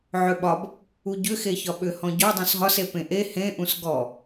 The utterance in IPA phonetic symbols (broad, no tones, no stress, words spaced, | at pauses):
ʕʏɓɒb | uɟʏ xeçɒɓʏ hɔ̃ɟɔ dˤũsɦɒs epẽʔe hẽ ʔũsɡɔ